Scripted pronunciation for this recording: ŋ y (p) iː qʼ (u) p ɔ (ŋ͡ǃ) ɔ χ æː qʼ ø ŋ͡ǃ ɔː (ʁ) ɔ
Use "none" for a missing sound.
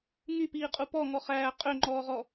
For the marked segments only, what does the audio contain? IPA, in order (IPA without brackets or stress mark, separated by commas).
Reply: p, u, ŋ, ʁ